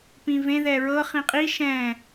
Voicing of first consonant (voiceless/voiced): voiceless